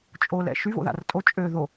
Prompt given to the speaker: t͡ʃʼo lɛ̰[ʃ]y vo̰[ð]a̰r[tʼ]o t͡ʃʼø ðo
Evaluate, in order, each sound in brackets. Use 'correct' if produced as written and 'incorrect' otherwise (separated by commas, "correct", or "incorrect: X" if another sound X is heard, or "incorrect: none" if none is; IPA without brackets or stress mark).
correct, correct, correct